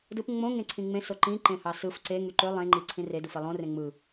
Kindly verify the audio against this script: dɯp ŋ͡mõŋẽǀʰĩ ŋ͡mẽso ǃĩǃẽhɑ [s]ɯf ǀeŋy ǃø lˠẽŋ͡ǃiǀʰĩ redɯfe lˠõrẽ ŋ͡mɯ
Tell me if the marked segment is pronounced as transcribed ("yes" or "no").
yes